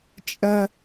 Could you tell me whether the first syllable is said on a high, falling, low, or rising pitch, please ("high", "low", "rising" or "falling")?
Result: high